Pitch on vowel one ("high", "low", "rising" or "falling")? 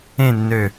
falling